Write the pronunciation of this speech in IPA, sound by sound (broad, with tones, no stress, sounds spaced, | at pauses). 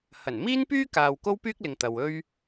h ɐ˨˩ n m iː˥ n p yː˥ k aː˨ w k o˥ w p yː˥ k̚ l ɪ˨ ŋ t̪ ɐ˨ w ɵ˥ ɥ